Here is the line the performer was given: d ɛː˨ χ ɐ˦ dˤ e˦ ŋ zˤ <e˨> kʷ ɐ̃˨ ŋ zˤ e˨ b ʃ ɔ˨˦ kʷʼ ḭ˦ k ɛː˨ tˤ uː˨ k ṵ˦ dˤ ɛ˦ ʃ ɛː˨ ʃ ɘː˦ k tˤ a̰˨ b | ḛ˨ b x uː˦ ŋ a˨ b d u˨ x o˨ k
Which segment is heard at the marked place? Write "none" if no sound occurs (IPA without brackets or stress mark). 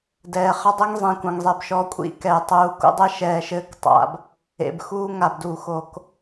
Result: ẽ˨